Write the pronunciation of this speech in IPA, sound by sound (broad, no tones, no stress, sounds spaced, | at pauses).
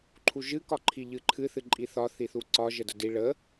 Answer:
ǃʰ u ʒ ɨ k ɒ ǃʰ i ʎ ɨ ǃʰ ɨ θ ɨ ǃʼ i θ ɒ θ i θ u ǀ ɒ ʒ ə d ə d i ɭ ə